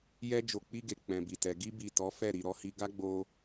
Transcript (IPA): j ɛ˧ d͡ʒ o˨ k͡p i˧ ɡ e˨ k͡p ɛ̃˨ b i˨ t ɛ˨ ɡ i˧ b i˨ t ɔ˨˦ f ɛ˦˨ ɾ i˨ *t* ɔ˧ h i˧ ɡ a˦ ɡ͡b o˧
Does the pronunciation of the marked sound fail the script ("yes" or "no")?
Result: yes